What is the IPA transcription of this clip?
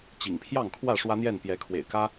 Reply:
t͡ɕ ḭ˨˩ ŋ pʰ j ɑ˥˨ ŋ kʰ w ä˥˨ ʂ w ä˦ n̪ j ɛ˥˨ n p j ɛ˨˦ kʰ w ḛ˨˩ ɪ̯ k ä˦

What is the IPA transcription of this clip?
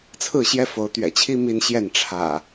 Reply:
t͡sʰ ɹ̩˥˨ ɕ j ɛ˦ f o˨˦ ʊ̯ t̪ ɥ ɛ̰˨˩ t͡ɕʰ i˦ m i˦ n ɕ j ɛ˥˨ n ʈ͡ʂʰ ä̰˨˩

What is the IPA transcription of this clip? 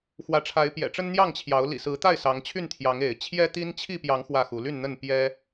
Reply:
x w ä˨˦ ʈ͡ʂʰ a˨˦ ɪ̯ p j ɛ̰˨˩ ʈ͡ʂ ə˦ n n̪ j ɑ˥˨ ŋ t͡ɕʰ j ɑ˨˦ ʊ̯ l ḭ˨˩ s ɹ̩˨˦ t̪ a˥˨ ɪ̯ s ɑ˨˦ ŋ t͡ɕʰ y˥˨ n t̪ʰ j ɑ˨˦ ŋ e˨˦ ɪ̯ t͡ɕʰ j ɛ˦ t̪ i˦ n t͡ɕʰ i˥˨ p j ɑ˨˦ ŋ x w ä˥˨ x u˨˦ l y˥˨ n n̪ ə˥˨ n p j ɛ˦

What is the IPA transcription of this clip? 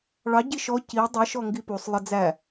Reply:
ɭ ɑ ɟ i ʃ ɔ c i dˤ i ʃ ɔ ŋ ɡ i p u sˤ lˠ ə d͡z æ

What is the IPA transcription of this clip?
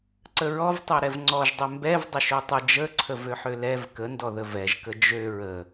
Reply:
ǀ ə ɹ ɔ v tˤ ø ɾ ɛ v ŋ͡ǀ ɔ ʒ dˤ ø m b ɛ v dˤ ə ʃ ø tˤ ə d͡ʒ ə ǀʰ ə v ø ħ ø l ɛ v k ə n d ɔ ð ə v ɛ ʒ k ə d͡ʒ ø ɹ ə

